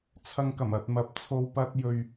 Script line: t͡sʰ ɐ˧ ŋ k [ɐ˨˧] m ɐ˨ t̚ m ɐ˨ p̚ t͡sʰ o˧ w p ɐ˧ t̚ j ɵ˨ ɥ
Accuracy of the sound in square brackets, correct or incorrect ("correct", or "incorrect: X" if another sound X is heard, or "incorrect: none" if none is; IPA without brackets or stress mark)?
incorrect: ɐ˨˩